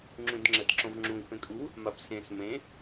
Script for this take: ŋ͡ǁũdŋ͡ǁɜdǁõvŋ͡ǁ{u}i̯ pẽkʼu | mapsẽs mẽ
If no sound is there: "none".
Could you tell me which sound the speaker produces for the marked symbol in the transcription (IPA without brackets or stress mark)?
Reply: ũ